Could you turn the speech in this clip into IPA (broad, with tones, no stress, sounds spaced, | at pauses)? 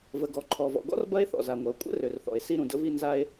v ə˩ ɡ ɔ˩ ǃʰ ɔ˩ v ɔ̰˩ ɡ ɔ̰˥ r b ɐ˥ e̯ θ ɔ̰˩ z a˩ ŋʷ ɐ˩ o̯ kʷʼ ə̰˥ r ø˩ r θ ɔ̰˩ e̯ s i˥ ɾ ũ˩ d ə̰˥ v i˥ n z a˥ e̯